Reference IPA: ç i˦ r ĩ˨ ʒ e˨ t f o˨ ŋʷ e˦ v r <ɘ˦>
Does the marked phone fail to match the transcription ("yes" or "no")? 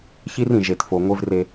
yes